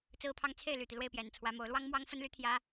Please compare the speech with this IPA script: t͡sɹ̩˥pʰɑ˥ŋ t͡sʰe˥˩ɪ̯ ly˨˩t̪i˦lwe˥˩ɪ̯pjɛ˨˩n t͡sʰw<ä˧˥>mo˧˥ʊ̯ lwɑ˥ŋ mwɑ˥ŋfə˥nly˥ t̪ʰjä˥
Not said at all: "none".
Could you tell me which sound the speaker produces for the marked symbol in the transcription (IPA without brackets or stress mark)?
ä˧˥